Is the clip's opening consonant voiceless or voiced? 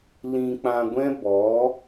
voiced